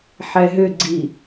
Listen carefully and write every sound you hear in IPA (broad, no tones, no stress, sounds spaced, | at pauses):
ħ ɛ ɦ ʏ ɡ͡ǀ i